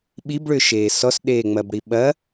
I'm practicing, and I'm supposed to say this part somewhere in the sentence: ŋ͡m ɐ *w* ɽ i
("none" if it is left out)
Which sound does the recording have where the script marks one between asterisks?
b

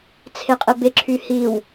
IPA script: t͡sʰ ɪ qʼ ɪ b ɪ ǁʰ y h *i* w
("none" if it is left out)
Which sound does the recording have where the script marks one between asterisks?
i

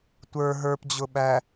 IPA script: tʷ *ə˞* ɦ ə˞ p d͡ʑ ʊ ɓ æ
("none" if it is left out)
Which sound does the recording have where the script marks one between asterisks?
ə˞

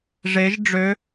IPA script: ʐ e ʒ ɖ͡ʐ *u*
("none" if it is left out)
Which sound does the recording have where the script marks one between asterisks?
ø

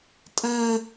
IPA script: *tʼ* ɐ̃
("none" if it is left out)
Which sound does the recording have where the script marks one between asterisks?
tʼ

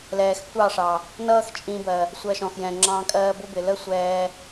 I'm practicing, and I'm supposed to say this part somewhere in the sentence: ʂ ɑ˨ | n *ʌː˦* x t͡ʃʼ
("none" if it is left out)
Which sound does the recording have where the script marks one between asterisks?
ʌː˦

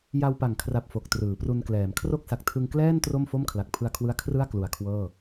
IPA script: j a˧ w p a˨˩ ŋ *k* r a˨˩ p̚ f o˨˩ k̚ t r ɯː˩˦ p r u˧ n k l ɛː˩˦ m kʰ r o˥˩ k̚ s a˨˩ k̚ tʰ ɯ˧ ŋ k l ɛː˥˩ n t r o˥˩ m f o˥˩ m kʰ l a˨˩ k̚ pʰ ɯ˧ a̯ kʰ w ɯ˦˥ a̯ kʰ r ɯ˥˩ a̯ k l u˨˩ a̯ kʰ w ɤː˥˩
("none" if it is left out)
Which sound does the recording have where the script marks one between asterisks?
kʰ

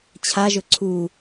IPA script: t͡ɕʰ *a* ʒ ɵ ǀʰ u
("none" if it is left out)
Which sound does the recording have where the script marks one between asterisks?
a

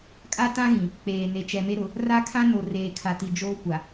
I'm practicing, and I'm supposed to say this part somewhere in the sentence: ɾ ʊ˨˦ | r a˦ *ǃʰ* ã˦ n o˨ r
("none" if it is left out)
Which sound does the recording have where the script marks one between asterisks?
kʰ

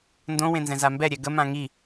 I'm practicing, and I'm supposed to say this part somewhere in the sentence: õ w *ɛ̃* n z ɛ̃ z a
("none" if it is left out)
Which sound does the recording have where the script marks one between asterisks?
ẽ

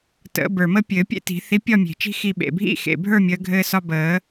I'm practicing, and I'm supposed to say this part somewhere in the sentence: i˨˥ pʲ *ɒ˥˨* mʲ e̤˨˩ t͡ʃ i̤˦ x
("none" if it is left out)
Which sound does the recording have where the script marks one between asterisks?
ɒ˥˨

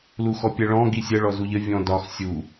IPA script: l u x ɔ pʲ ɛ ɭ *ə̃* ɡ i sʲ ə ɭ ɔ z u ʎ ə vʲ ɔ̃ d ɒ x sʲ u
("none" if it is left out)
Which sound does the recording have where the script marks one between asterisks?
ɔ̃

